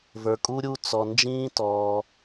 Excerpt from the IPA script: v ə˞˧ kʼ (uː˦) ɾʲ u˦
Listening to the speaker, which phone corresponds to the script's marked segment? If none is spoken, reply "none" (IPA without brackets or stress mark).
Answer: u˦